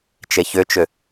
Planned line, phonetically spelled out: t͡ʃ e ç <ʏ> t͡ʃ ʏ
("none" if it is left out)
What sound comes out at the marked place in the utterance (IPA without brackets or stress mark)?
ʏ